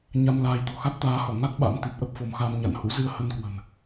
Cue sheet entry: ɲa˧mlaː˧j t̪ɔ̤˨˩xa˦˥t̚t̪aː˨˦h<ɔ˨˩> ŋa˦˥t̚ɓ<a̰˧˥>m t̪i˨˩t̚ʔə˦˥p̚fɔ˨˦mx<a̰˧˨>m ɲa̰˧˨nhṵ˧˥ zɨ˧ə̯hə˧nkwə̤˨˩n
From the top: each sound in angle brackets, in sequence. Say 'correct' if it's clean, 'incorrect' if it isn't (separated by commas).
incorrect, correct, incorrect